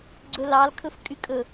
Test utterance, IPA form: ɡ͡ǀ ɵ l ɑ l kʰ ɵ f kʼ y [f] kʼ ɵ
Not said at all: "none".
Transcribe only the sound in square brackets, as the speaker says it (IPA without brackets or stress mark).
none